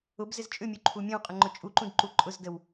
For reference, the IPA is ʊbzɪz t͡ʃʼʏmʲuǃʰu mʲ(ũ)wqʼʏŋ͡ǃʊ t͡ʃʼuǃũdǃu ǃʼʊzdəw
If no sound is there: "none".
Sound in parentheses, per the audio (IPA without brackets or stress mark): õ